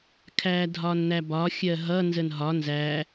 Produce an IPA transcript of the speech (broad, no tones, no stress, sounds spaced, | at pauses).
kʰ æ dʱ ɒ n n̪ æ b ɒ xʲ ɜ ɦ ʌ n z ə n ɦ ɒ n z æ